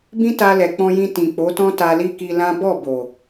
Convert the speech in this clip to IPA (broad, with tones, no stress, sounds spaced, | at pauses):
b ĩ˦ t a˧ l ɛ˨ k͡p ɔ̃˧ j ĩ˧ t ĩ˨ k͡p o˨˦ t ɔ̃˦ t a˧ l i˦ k i˧ l ã˦ b ɔ˦˨ b o˨